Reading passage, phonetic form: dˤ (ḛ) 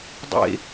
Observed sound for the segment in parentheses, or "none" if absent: ḛ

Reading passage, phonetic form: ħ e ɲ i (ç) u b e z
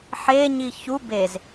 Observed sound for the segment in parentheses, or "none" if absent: ç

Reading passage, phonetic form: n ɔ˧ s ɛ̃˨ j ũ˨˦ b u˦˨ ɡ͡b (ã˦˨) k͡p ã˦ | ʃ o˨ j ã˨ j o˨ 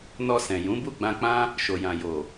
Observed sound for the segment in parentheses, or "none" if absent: ã˧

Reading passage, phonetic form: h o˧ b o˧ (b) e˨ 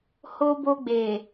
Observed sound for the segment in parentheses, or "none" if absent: ɡ͡b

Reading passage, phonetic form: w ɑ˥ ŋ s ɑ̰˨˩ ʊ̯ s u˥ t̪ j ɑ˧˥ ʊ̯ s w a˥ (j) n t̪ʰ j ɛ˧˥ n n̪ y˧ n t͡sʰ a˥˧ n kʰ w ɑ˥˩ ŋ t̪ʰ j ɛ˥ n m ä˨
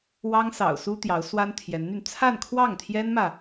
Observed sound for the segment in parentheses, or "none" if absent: none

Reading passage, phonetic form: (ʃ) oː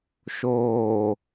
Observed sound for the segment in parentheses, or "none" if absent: ʃ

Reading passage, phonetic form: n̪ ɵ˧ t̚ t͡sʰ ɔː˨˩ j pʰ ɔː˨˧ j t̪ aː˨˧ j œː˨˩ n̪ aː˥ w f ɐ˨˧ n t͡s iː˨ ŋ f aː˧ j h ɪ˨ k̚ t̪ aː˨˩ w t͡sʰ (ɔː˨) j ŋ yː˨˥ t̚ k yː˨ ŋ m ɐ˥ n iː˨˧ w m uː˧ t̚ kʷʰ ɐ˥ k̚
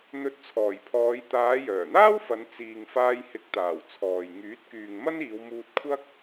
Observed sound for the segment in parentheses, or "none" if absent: ɔː˨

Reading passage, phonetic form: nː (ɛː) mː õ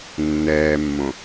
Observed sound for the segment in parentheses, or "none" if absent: ɛː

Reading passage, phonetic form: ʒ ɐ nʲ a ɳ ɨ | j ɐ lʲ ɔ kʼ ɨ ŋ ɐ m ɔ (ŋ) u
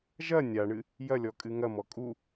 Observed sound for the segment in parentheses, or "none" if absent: kʼ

